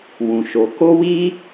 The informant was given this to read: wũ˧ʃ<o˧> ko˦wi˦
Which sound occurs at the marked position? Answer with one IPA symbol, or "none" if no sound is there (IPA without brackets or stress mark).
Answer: o˧